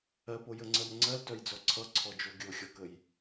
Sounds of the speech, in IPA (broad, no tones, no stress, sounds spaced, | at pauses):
ɜ p o j ə ŋ͡ǀ ɜ m ŋ͡ǀ ɜ l t œ j d͡z ɔ ǀʰ ʌ ǀʰ ɔ d͡ʒ o ɡʲ o xʲ ɔ k ə j